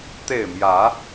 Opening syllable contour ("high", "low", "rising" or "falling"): falling